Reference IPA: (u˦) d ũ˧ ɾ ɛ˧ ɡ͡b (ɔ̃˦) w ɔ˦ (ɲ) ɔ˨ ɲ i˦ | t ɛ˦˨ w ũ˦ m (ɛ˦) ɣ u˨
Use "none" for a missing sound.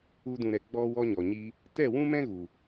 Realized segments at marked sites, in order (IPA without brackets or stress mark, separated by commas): u˦, ɔ˦, ɲ, ɛ̃˦